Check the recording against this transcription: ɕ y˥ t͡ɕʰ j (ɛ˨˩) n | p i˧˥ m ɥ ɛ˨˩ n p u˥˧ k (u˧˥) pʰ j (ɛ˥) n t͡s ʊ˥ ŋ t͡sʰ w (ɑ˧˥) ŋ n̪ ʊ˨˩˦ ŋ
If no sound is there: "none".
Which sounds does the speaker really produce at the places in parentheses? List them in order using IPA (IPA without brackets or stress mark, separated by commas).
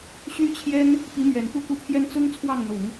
ɛ˥, u˥˩, ɛ˥, ɑ˥˩